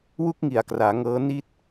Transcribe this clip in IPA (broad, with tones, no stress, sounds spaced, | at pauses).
w u˦˥ k̚ ŋ i˨˩ a̯ k r aː˩˦ ŋ ɤː˦˥ n i˥˩ t̚